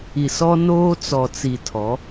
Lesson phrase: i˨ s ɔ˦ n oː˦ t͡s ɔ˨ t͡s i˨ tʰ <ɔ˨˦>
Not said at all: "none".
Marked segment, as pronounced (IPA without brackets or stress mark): ɔ˨˦